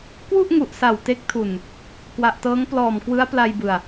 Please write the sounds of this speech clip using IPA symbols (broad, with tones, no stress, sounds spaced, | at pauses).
k w u˥˩ ʔ ŋ u˨˩ ʔ s a˨˩ w t e˦˥ k̚ tʰ u˨˩ n | k w a˨˩ ʔ t ɤː˦˥ ŋ p l ɔː˨˩ m k w ɯ˦˥ a̯ p l a˧ j b ɯ˨˩ a̯